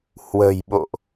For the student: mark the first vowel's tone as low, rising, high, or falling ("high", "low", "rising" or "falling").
low